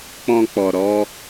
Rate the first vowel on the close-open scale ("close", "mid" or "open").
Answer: mid